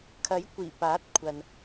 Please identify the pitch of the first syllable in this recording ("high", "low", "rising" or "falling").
rising